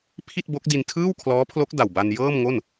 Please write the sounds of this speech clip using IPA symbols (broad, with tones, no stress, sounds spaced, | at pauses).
pʰ i˥˩ t̚ b o˦˥ k̚ d i˧ n tʰ ɯː˥˩ w kʰ l ɔː˦˥ pʰ l o˦˥ k̚ d a˨˩ w b a˧ n j ɤː˥˩ m ŋ o˥˩ n